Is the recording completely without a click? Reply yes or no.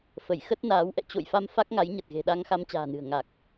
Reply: yes